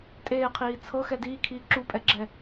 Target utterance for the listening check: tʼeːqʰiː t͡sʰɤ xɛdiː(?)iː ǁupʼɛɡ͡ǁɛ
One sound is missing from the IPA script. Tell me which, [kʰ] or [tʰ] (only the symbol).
kʰ